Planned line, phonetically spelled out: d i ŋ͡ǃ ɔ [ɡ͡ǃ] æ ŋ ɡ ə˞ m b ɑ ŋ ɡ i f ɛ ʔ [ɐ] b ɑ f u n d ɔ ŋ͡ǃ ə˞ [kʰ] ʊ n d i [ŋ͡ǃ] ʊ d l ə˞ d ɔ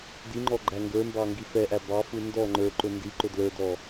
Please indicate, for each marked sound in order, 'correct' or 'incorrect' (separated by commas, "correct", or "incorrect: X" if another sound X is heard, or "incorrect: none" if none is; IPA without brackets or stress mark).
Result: correct, incorrect: æ, incorrect: ǃ, incorrect: ǃ